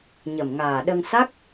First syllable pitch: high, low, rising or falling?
low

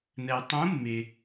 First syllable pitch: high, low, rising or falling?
low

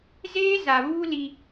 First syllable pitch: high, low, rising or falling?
high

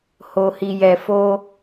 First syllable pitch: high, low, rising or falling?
low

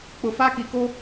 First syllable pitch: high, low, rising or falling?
low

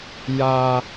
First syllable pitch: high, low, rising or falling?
high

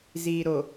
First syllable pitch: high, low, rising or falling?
low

